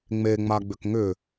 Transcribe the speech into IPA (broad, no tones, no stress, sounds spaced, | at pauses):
ŋ͡m e ŋ͡m a ɡ͡b ʏ k ŋ ʏ